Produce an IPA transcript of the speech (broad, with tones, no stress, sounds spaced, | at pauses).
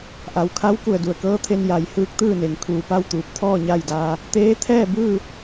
ʔ a˩ w kʰ a˧˥ w k u˧˩ ə̯ d u˩ ə̯ k ɤː˧˥ t̪ʰ e˧ n j a˩˧ j h ɯː˧˥ k̚ t̪ ɯː˥˨ n e˧˩ ŋ kʰ uː˧˩ p a˥˨ w t̪ uː˧˩ p̚ t̪ʰ ɔː˥˨ ɲ a˥˨ j d aː˧ | t̪ eː˧˥ t̪ʰ ɛː˥˨ b ɯː˥˨